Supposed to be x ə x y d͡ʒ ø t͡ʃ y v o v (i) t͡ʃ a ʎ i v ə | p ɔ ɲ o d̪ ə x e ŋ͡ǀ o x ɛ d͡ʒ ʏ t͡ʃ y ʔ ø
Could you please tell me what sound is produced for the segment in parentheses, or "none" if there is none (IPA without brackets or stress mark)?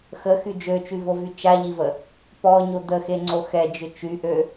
y